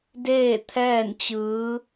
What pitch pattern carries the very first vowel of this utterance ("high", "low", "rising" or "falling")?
falling